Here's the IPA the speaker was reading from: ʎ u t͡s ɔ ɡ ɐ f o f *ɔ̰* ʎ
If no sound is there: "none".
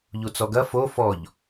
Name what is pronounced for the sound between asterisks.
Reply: ɔ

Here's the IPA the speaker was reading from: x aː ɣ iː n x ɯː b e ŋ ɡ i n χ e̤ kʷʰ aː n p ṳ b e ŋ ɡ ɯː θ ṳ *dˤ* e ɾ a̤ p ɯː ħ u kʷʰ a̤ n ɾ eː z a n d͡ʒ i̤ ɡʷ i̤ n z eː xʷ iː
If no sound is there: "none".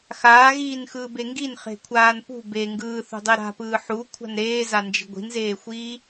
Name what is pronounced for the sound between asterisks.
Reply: dˤ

